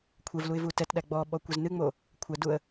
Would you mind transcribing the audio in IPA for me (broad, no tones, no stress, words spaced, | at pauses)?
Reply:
kʷʰɛvluɪ̯ vutɛtɗæ ɡ͡bɔ ɓɔkʷɛznɨŋ͡mo | kʷʰæduə̯